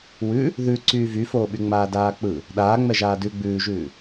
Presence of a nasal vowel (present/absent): absent